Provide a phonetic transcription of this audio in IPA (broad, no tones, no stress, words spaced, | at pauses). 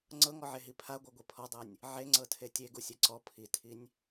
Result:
ŋ͡ǀɤŋɔʕeɦi pʰaɡʷaɡʷe pʰɔdˤɤnʲ | ʕe ŋ͡ǀɤtʰetʲe ɡusʲɛǀɔ pʰitʰinʲ